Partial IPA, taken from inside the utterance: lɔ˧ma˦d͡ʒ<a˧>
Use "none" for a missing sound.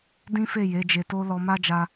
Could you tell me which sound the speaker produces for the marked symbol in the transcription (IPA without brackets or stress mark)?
a˧